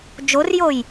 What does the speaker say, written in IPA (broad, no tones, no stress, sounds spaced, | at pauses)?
d͡ʒ o r j o j